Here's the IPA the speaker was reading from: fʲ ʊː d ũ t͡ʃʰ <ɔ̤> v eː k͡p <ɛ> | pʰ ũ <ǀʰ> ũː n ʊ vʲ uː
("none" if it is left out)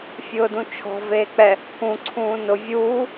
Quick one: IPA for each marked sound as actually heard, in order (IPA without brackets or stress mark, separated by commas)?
ɔ̤, ɛ, ǀʰ